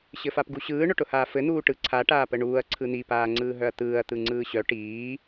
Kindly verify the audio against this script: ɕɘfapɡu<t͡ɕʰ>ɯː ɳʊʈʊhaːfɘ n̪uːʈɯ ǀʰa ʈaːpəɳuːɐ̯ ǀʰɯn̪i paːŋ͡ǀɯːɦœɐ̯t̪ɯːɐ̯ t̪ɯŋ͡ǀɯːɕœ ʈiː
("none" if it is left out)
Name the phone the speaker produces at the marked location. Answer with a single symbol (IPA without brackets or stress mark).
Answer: ɕ